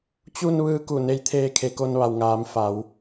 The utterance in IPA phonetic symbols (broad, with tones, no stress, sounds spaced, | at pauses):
t͡ɕ u˧ n ʋ ɯː˧ k u˧˩ n e˧˥ j t̪ʰ eː˧ kʰ e˩ k o˧ n ʋ a˩ w ŋ aː˩˧ m f a˩˧ w